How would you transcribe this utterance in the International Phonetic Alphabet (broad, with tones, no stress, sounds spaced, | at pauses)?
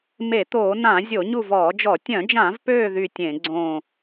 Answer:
m e˧˩˧ t̪ oː˧˩˧ n ã˧˩˧ zʲ o˧˩˧ ɲ u˦˨ v ɔː˧˩˧ d͡ʒ ɔ˧˩˧ tʲ œ̃˧˩˧ d͡ʒ ã˧˩˧ v p øː˦˨ ð y˦˨ tʲ ẽ˧˩˧ ɡ͡ǀ õ˦˨